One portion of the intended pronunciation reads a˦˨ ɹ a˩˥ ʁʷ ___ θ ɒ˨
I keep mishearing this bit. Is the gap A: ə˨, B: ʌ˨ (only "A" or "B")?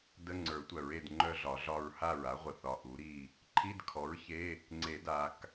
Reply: A